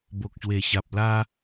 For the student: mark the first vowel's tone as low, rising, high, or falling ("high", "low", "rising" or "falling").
low